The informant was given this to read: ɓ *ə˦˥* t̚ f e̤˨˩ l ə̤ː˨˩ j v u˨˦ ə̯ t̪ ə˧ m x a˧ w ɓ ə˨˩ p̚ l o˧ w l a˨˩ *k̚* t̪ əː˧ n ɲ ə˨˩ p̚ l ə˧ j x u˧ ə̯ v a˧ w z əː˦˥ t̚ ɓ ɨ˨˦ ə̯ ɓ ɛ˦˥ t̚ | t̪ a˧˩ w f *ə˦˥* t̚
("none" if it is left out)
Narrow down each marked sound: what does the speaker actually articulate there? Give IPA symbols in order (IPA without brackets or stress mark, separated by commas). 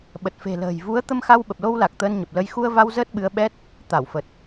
ə˨˩, k̚, ə˨˩